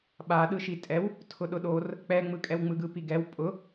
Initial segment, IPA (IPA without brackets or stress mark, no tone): ɓ